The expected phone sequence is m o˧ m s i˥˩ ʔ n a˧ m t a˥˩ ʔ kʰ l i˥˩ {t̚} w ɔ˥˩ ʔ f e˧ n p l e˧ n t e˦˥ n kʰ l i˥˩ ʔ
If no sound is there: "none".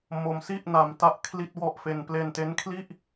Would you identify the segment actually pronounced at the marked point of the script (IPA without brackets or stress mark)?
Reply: t̚